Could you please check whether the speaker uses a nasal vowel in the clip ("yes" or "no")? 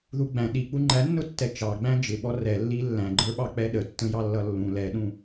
yes